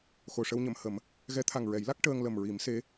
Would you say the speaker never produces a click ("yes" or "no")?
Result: yes